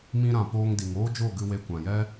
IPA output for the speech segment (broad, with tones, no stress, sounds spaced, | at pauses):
m ĩ˧ ɾ ã˨ p oː˧ ŋ d i˨ ŋ oː˦ d͡ʒ o˦˨ ɡ ɨ˧ w e˧ kʷ ã˨ j ɛ˦